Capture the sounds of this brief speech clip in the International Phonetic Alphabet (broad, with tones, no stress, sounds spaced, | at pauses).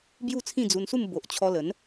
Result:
b j u˥˧ t͡sʰ ĩ˥˧ d͡z u˧ n s u˥˧ m b o˨ ʔ t͡ɕʰ ɔ˧ l ə˨˦ n